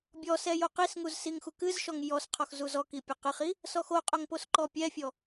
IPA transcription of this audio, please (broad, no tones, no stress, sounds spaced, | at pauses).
bʲ ɔ s ɛ j o q i s ŋ u z s i ŋ x u k ɨ z ʃ ɔ ŋ j ɔ s qʰ ɔ x z u z ɔ k i pʲ ɐ q ɨ χ i | s ɔ x o qʼ o ŋ p o s ǃ ɔ pʲ ɛ fʲ ɔ